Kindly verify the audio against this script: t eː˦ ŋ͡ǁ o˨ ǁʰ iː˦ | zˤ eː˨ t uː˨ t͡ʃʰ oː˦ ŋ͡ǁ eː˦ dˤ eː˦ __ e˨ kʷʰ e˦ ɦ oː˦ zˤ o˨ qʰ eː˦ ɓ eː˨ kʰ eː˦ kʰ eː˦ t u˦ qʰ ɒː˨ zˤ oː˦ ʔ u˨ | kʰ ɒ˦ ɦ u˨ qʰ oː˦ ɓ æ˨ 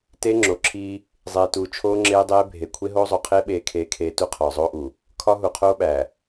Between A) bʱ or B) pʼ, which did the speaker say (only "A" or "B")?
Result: A